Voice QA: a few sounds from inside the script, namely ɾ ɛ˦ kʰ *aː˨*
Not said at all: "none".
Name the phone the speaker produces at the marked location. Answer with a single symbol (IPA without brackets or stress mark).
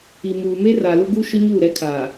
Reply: aː˨